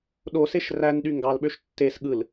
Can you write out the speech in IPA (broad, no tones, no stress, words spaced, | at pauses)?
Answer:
ɗoseʃ rænɗy ŋɡɑlɓøʃ tːes ɠɯl